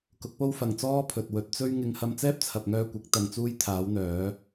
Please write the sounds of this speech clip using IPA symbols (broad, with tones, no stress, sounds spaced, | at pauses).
k ʊ˨˥ k̚ p o˥ w f ɐ˨ ŋ t͡s ɔː˥ pʰ ɵ˨ t̚ w ɵ˨˥ t̚ t͡s ɵ˥ ɥ ŋ ɪ˧ ŋ h ɐ˧ m t͡s ɛː˥ p̚ t͡sʰ ɐ˨ p̚ ŋ œː˧ kʷ ɪ˨˥ k̚ t̪ ɐ˧ ŋ t͡s uː˥ j t̪ʰ aː˨˥ w n̪ œː˨˥